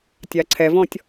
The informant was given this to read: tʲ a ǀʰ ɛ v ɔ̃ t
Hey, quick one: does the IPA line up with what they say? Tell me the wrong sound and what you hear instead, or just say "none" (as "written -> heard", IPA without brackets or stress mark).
t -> tʲ